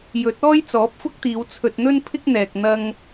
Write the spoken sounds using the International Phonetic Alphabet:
jɵ˨˥t̚ɔː˥j t͡sɔː˨˥p̚fʊ˥k̚t̪iː˨˧w t͡sʰɵ˧t̚ n̪ɵ˥n pʰɪ˥k̚n̪ɛː˨k̚ n̪ɐ˥ŋ

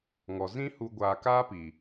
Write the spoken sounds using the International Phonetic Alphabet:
ŋɔ˨ zĩ˦ hu˨ ɡʷaː˨kaː˦pi˨

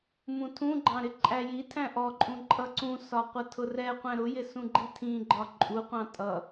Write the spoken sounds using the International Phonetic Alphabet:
mũtʰũɡ͡ǃɑ̃ ɾɪǃʼæjitʰæ̃ ʔɔǃʼũ ǃʼʌǀũsɒ qʷʌtʰʊrɛqʷæ̃ ɾʊjɪ sũɡ͡ǃitʰĩɡ͡ǃɒ ǃʼuqʷɑ̃ tʼʌ

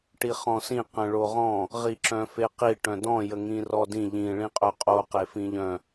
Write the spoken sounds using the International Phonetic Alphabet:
ʈiχɔ̃sĩ qə̃ɭoʁɔ̃ | ʁiǁœ̃feqi ʈœ̃dɔ̃ jəŋĩrɔdĩ ʎĩ ɭĩqʼœqʼo qefĩʎœ̃

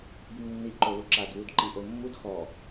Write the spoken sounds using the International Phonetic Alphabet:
bimnːi ǃoluǁad wudǃiʔomːud xɔ

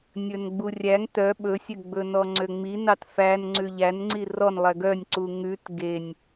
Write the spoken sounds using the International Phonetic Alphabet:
nʲɵnɡ͡burʲæŋ tœ ɓɵsʲøɡ͡bɵ nɔŋ͡ǀøŋ͡mi nɑtfæn ŋ͡ǀʉʎænŋ͡ǀi rɔnlˠɛ ɡœnʲǀu ŋʉt ɡenʲ

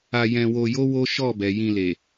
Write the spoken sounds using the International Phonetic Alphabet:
a˧jɛ̃˧wo˧jo˦ wo˦ ʃɔ˦˨bɛ˨ jĩ˧le˨

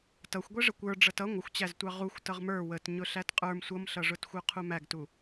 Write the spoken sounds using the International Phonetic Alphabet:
tʌxʷɡʷɛʐə kʷə˞ ɖ͡ʐʌtʌ ŋʷəxʷt͡ɕæztʷɑ ʁuxʷ tʌʁmə˞ wət ɲʊɬætqʼə˞m sʷʌmɬʌʐʊtxʷə˞ qʰumæɡtu

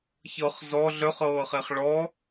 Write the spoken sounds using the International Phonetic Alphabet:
çɤχ zɔ ɮœχɤːχeχ ɭɔ

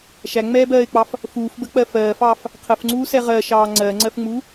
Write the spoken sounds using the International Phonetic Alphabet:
ʃæŋ͡mɛːbɜːɪ̯k͡pɑf | fuːfbək͡pɜ fɜːfɑːf | qʰəfŋ͡ǀuːsɛ ʁɜʃɑː ŋ͡ǀɜŋ͡ǀɜfŋ͡mu

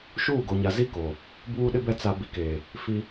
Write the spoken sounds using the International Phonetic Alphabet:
ʃuː˦˨ɡo˨ɲa˨zi˦ ko˨ | buː˦ɗɪ˦bɛ˦ t͡sa˨ bi˨keː˨ | fi˦

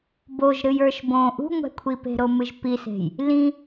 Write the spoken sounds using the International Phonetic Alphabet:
boʒ ɾɨjə˞ʃbõ ʔṳŋʷɛ̤kʷʰipe̤ ɾomɨʒpise̤j | lĩ

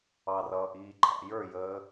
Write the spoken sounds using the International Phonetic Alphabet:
ɑrʌːʔiːǃʰɑ̰ jə˞jəː

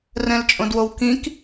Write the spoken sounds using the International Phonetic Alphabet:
rɛ̃lt͡ʃʼõdwowkĩk

